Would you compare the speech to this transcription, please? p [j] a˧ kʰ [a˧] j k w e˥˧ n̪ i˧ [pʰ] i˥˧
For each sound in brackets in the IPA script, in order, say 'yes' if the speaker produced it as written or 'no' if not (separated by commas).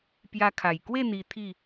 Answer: yes, no, no